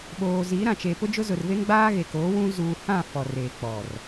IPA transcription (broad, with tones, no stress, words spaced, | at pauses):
ɓoː˨ ziː˨˦ɾã˨t͡ʃe˨ pʊ˦d͡ʒʊ˦zʊ˨r ve˦ŋɡ͡baː˦ɣe˨ koː˨˦wũ˦ zuː˨hã˦˨ fɔ˨reː˨k͡pɔ˨r